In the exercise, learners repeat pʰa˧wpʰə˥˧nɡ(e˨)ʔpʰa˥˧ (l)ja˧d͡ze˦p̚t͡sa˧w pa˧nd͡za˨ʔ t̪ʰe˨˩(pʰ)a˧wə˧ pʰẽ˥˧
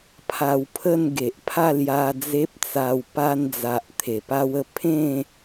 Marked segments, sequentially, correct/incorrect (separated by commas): correct, correct, incorrect